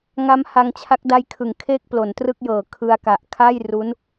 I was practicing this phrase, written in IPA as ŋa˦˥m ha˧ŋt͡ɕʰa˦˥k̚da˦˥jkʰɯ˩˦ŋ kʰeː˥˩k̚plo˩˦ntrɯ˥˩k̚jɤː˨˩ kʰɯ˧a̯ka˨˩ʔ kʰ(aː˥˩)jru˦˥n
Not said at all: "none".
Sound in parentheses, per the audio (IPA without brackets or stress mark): aː˥˩